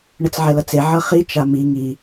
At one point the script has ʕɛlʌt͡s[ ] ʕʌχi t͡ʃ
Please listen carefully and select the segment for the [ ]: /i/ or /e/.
e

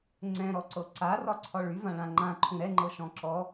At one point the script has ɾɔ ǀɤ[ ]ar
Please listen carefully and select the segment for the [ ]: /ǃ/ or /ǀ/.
ǀ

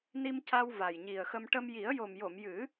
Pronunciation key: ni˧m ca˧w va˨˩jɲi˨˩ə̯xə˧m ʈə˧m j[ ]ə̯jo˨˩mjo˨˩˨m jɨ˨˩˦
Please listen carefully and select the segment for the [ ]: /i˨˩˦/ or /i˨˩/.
i˨˩˦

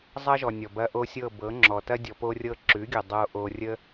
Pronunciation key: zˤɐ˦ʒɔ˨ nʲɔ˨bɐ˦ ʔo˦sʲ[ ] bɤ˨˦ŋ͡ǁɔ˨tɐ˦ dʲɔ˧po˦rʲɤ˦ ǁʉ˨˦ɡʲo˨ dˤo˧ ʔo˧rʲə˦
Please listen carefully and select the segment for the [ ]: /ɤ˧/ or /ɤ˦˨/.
ɤ˦˨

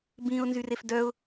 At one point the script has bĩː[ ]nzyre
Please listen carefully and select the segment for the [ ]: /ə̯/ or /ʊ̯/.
ʊ̯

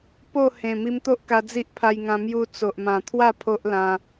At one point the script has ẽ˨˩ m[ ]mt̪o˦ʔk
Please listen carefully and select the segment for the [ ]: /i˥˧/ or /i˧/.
i˧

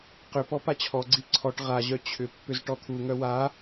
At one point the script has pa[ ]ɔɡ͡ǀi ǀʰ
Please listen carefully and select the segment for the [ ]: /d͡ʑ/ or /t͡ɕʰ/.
t͡ɕʰ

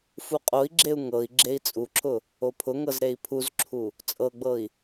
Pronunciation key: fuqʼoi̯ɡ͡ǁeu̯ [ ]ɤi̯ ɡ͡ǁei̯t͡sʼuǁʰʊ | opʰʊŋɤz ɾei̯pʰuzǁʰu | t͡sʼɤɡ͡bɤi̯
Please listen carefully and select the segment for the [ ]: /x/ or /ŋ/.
ŋ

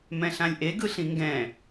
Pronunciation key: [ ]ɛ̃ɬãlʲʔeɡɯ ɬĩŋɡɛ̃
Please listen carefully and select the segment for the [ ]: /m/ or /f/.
m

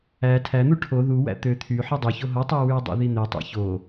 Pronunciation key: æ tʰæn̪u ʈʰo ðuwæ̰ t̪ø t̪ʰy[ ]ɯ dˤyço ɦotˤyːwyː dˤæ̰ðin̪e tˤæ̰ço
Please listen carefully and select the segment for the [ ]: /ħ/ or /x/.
ħ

